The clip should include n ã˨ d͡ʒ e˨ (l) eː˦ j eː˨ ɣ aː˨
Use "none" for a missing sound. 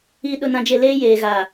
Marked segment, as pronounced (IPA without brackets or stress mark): l